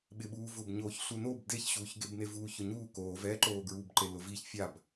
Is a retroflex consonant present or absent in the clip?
absent